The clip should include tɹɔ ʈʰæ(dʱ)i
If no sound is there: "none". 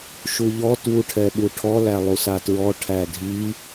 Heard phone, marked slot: dʱ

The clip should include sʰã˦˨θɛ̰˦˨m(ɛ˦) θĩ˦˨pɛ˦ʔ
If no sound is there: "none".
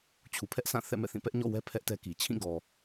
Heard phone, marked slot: ɛ̰˦˨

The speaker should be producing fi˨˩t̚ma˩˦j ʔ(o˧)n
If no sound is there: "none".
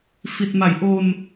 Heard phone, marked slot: o˧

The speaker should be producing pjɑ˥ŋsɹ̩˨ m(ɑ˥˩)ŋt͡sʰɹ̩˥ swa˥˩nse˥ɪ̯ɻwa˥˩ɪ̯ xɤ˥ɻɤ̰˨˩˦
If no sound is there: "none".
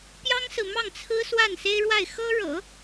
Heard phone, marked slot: ɑ˥˩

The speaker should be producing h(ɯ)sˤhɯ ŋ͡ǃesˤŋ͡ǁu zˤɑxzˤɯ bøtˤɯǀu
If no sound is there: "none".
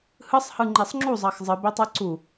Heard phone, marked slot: ɯ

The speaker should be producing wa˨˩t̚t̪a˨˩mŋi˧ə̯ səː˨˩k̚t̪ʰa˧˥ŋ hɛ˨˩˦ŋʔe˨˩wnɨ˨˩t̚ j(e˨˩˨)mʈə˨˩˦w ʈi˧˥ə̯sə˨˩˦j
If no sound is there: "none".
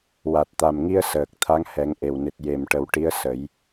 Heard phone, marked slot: e˨˩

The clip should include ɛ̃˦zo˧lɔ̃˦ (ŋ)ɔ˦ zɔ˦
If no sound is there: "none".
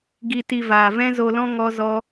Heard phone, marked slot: ŋ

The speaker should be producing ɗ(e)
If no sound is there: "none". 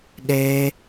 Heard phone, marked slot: e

